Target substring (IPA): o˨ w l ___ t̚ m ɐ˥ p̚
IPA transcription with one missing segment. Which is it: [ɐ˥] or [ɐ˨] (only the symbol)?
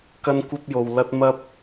ɐ˥